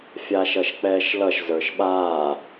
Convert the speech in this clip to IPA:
fʲ aː ʃ ʌ ʃ k͡p ɛː ʃ l ʌ ʃ z ə˞ ʃ ɓ aː

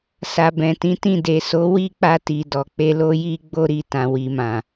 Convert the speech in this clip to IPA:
s a˨ b ɛ̃˨ t ĩ˨˦ t ĩ˦˨ d e˨ s o˨˦ w i˦ k͡p a˧ t i˨ d ɔ˨ k͡p e˧ l o˧ j i˧ ɡ͡b o˧ ɾ i˧ t ã˨ w i˨ m ã˨

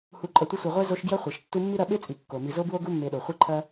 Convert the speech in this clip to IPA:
h u˨ ǃʼ ɐ˨ tʷ ɐ˦ sʷ e˨ ʁʷ e˥ z o˦ ʃ ɡ j ɐ˥ χʷ i˩ ʃ tː u˦ mː i˥ ɾ ɐ˦ ɓ e˥ t͡sʼ i˩ kː o˩ m i˨ z o˥ b w o˥ ɡ u˦ mː e˨ ɗ o˩ χʷ i˥ ǃʰ ɐ˥

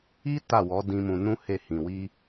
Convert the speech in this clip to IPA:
i˦ t a˦˨ w ɔ˨˦ d ĩ˧ m ũ˧ n ũ˦ h e˦˨ h ĩ˨ w i˧

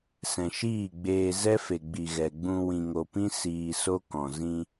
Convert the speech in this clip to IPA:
s ɛ̃˨ ʃ iː˦˨ ɡ͡b eː˧ z ɛ˦ f e˨ ɡ͡b i˨ ɣ ɛ˨ ɡ͡b ũ˧ w ĩ˨ ŋ o˨ p ĩ˦ s iː˧ s o˦ k ɔ̃˨ z ĩ˧

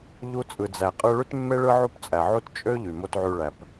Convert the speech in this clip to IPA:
ʎ u˧ t͡sʼ ɯ˩ d͡z æ˩ qʼ ɯ˧ ɭ y˥ t mː e˥ ɭ ɯ˥ ʕ u˥ p t͡sʼ æ˩ ʕ u˥ t t͡ʃʼ ø˥ ʎ y˩ m o˧ t ʕ y˧ ɭ æ˩ p

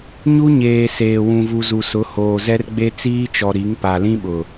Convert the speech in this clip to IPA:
ɲ u˦ ɲ eː˨ s eː˨ w ũ˨ v u˨ z u˨ s ʊ˨˦ h oː˨ z ɛ˦ r ɡ͡b e˦ t͡s iː˦ t͡ʃ ɔ˨ ɾ i˨˦ ŋ p a˨ l ĩ˦ ɓ ʊ˨

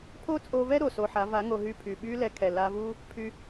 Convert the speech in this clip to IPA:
pʰ o˦ t͡sʼ o˧ v ɛ˦ ɾ o˨ s o˧ ħ a˨˦ v a˨˦ ŋ o˧ ɦ y˦˨ pʰ y˨ ɓ y˦ l ɛ˧ kʰ ɛ˨ l a˧ v u˦ | pʰ y˧

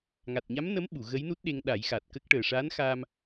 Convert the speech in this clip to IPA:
ŋ a˨˩ t̚ ɲ a˧˥ m n ə˧˥ m ɓ u˨˩˨ ɣ ə˧˥ j n u˦˥ t̚ ɗ e˧ ŋ ɗ a˨˩˦ j x a˨˩ t̚ k ə˦˥ k̚ ʈ əː˨˩ ʂ a˧˥ n x a˧ m

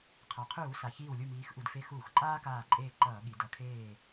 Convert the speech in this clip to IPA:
qʰ a˩ qʰ uː˧˩˧ s a˩ ç iː˧˩ w lʲ u˧˩ m iː˩˧ x ʔ u˩ d f e˧˩ x uː˧˩˧ x ǃʼ aː˦ k aː˧˩ ǃʼ eː˧˩ ǃ ʌː˧˩˧ ɠ i˩˧ d ʌ˩˧ kʰ eː˧˩

